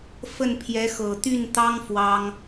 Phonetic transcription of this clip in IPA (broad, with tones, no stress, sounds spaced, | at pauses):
f ə˥˩ n pʰ j ɛ˧˥ x ɤ˨˩ t̪ y˥˩ n t̪ ɑ˥ ŋ f w ɑ˥ ŋ